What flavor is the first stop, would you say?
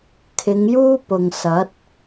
aspirated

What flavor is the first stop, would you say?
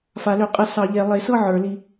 ejective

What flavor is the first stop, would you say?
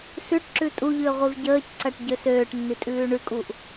plain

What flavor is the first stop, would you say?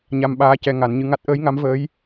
implosive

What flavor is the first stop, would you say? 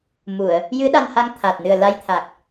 implosive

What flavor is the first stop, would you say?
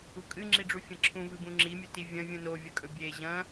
ejective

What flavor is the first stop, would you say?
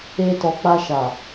plain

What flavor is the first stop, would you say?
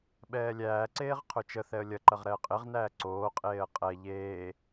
implosive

